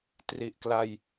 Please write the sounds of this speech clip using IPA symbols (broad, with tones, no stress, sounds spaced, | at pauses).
t r i˨˩ ʔ k l a˧ j